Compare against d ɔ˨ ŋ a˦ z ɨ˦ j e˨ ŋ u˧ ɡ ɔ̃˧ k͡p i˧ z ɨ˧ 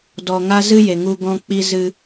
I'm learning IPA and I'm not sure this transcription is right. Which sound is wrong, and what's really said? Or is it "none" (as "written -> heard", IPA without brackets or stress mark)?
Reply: none